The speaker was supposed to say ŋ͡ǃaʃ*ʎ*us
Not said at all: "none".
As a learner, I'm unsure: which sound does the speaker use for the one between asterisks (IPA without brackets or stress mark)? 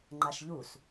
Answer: ʎ